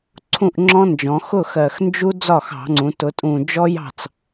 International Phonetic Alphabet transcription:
ǀʰ ũ˥˩ ʔ ŋ͡ǁ ɔ̃˦˥ n d͡ʒ ɔ̃˩˧ x ʊ˥˩ x ɜ˨˩ x n d͡ʒ u˦˥ d͡z ɒ˥˩ x ɑ̤˧˩˧ ŋ͡ǀ ũ˩˧ t ʊ˩˧ tʼ ũ˨˩ d͡ʒ ɔ˦˥ j ɑ̤˥˩ t͡s

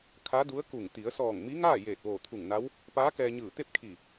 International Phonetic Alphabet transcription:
kʰ a˧˥ d u˧˥ ə̯ k u˧˩ ŋ t̪ i˩˧ ə̯ s ɔː˧˩ ŋ m i˧˥ ŋ aː˥˨ j eː˧˩ t̚ ʋ oː˧˩ t̪ʰ u˧˩ ŋ n a˧˥ w | p aː˧˥ k ɛː˧ ɲ ɯː˧˩ t̪ e˥˨ p̚ kʰ i˧˩

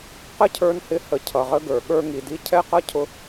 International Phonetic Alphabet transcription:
q ə˦ cʰ ə˞˧ n h ɪ˧ h ə˨ cʰ ʌ˨ ʁ ə˦ ɡ ə˞˨ ɠ ə˞˦ ŋ i˧ d i˦ cʰ ɛ˦ q ʌ˦ cʰ ʊ˦

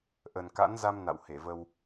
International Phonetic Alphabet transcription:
ʔ ə˨˩ n k a̰˧˥ n z a˧ m n a̰˧˨ w h e˧˩ v ə˧ w

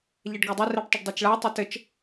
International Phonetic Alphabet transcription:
ʎ ɛ ɖ ɡ a dˤ e r ɛ ɖ tˤ ɘ ɖ dˤ e t͡ʃ ɭ a tˤ ɛ t ɘ t͡ʃ

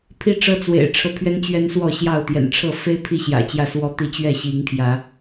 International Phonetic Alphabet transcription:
pʰ i˦ ʈ͡ʂ ɤ˦ t͡s w ḛ˨˩ ɪ̯ ʈ͡ʂʰ ɤ˦ pʰ ɥ ɛ˦ n t͡ɕ ɥ ɛ˦ n s w ɔ˥˨ ɕ j ɑ˥˨ ʊ̯ t̪ j ɛ̰˨˩ n ʈ͡ʂʰ ɤ˥˨ f e˦ ɪ̯ pʰ i˥˨ ɕ j ä̰˨˩ t͡ɕ j ä˥˨ s w ɔ˦ t̪ i˥˨ t͡ɕ ɥ ɛ˥˨ ɕ i˨˦ ŋ pʰ j ä˨˦

